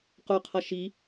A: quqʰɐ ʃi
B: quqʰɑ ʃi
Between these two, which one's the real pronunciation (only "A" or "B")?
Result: A